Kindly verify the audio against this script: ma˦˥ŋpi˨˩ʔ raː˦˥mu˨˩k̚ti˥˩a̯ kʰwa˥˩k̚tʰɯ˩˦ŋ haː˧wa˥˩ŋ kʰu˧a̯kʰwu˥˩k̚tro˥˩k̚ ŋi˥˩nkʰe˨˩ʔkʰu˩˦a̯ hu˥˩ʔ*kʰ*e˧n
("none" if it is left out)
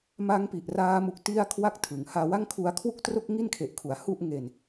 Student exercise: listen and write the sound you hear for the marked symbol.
ŋ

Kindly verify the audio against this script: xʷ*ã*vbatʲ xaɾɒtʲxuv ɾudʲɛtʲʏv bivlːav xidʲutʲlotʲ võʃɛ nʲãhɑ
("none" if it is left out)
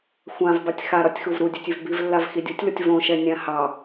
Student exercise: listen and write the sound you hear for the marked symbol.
ã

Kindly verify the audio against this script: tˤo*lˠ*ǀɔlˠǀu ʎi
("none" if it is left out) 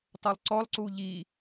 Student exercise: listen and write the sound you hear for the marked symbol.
lˠ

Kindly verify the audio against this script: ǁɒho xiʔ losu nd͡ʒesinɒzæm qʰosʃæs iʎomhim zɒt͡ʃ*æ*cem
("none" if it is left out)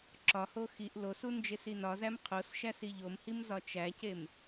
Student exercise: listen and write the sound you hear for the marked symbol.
æ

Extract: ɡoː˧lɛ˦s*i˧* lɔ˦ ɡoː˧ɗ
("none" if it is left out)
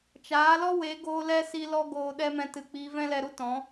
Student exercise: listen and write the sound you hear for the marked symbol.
i˧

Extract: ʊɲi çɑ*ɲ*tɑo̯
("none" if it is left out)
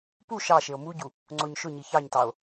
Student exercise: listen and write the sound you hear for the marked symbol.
ɲ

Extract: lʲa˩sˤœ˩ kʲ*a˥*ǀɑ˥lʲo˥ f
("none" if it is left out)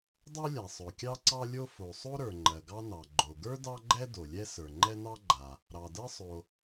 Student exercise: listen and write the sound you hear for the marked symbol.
ɑ˥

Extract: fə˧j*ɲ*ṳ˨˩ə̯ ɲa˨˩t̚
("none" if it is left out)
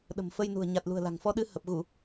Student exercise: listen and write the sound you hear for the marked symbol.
n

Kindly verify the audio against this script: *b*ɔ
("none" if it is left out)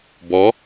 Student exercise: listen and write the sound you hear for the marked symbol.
b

